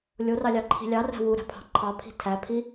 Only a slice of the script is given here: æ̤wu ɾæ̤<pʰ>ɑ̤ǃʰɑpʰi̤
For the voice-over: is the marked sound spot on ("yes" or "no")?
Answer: yes